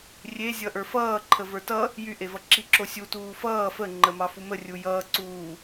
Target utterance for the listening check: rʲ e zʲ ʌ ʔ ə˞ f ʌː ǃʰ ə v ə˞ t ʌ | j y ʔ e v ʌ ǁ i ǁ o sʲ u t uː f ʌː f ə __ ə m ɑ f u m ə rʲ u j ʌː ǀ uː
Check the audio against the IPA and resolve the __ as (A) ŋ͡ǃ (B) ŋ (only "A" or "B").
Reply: A